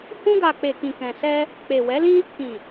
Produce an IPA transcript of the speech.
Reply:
h ũ˧ ɡ a˨ k͡p e˨ k ĩ˨ k ɛ̃˨ s ɛ˧ | k͡p e˨ w ɛ˨˦ l ĩ˦ | k ĩ˨

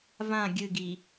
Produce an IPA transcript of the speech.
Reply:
v ã ɡʲ ɨ ɡ i

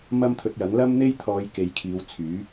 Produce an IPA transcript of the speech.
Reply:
m ɐ˥ m t̪ʰ ɵ˧ t̚ j ɐ˨˥ ŋ l ɐ˥ m n̪ e˥ j t̪ʰ ɔː˨˧ j k e˨˧ j kʰ iː˨˧ w t͡sʰ yː˨˥

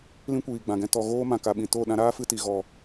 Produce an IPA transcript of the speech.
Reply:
l ĩ˦ kʷ iː˨ ɡ͡b ã˨ ɡ ɛ̃˦ t ɔ˧ ɣ oː˦ m ã˨ k a˨ ɓ ĩ˨ t o˦˨ ɗ ã˧ ɾ aː˦ f ɨ˧ t i˨ ɣ ɔ˦˨

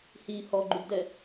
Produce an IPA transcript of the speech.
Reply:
h i h ɔ ɡ͡ǃ u b d ɛ

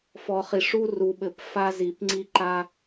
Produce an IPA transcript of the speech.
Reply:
f ɔ˨ χ i˨ ʂ u˦ r u˨ ɓ ɘ˨ p f a˦ z i˨ p ŋ͡ǀ i˦ ǃ a˦

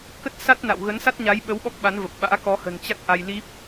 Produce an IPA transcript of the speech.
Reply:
k ə˦˥ t̚ s a˦˥ t̚ n a̰˧˨ w ɣ ə˨˦ n s a˦˥ t̚ ɲ a˨˦ j ɓ ə˨˦ w ɓ ɔ˦˥ k̚ ɓ a˨˦ n v ə˨˩ p̚ ɓ a̰ː˧˥ k ɔ˨˦ h ə̤˨˩ n t͡ɕ a˦˥ k̚ ʔ a˧ j l i˦˥ p̚

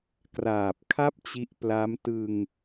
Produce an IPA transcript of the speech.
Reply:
k r aː˨˩ p̚ kʰ a˥˩ p̚ t͡ɕ i˦˥ ʔ p l a˦˥ m t ɯ˧ ŋ

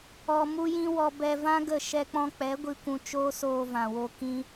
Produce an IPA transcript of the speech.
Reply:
ɔ˧ m u˦ j ĩ˦ w ɔ˧ b ɛ˧ v ã˦ ɡ ə˦˨ ʃ ɛ˧ k͡p ɔ̃˧ k͡p ɛ˨˦ ɡʷ i˧ kʷ ũ˧ t͡ʃ oː˦ s oː˧ v ã˨ w o˧ k ĩ˧

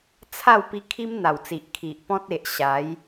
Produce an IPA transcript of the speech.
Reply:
t͡sʰ a˥˧ w p i˧ kʰ i˦ m n̪ a˨˩ w t͡s i˨ ʔ kʰ i˨ ʔ p ɔ̃˦ t̚ e˨ ʔ ɕ a˨˦ j

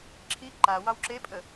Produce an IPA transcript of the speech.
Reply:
ǁʰ i ǃ a w ɑ w ǁ e pʼ ə

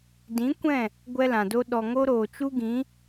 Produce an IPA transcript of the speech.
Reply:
d ĩ˨˦ kʷ ɛ̃˦˨ | ɡʷ ɛ˦ l ã˨ d o˦ ɗ ɔ˨ ŋ o˦ ɾ oː˨ t͡ʃ u˦ ɡ ĩ˨˦

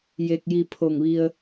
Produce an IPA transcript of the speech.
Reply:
j e˧ k̚ j i˧ pʰ o˧˩ ŋ ʋ i˧ ə̯

